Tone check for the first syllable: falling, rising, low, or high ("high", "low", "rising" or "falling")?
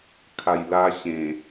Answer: low